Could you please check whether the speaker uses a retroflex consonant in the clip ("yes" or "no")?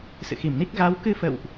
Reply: no